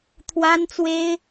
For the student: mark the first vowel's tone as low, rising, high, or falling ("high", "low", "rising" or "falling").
high